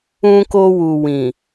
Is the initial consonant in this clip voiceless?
yes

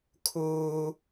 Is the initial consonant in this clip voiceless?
yes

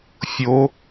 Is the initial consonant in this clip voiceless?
yes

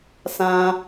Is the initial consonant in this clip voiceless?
yes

